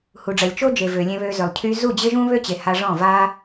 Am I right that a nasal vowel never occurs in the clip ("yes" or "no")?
no